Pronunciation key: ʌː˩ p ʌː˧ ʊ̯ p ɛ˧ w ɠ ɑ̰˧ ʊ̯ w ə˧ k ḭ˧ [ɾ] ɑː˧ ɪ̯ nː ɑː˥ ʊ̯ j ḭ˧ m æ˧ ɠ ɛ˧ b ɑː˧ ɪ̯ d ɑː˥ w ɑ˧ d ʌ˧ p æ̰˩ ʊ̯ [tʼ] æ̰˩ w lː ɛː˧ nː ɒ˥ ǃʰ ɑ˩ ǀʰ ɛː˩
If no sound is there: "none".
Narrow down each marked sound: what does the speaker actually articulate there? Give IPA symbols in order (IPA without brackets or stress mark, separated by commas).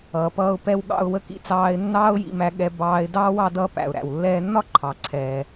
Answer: t͡s, ɾ